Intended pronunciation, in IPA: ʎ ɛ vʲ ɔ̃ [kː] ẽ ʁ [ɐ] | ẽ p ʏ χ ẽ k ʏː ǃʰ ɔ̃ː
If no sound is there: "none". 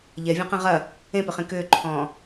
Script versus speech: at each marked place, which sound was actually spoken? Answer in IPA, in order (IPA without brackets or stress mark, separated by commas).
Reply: q, ɐ